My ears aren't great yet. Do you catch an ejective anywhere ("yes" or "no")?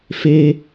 no